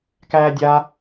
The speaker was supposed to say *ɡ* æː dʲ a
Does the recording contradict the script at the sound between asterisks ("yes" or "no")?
yes